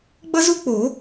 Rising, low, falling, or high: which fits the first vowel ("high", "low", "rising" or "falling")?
high